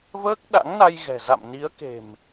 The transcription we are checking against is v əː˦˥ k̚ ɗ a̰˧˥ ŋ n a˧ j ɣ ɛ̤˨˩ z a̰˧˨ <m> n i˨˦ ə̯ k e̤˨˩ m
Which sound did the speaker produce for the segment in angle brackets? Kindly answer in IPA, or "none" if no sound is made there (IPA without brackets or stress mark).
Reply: m